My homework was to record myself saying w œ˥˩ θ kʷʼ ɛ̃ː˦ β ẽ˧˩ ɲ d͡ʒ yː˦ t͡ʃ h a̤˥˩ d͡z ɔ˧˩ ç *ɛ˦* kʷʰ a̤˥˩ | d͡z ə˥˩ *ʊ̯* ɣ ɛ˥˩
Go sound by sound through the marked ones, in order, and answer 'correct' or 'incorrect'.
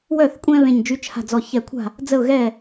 incorrect, correct

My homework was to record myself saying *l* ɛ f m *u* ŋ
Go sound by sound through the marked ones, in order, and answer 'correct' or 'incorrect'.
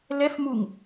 correct, correct

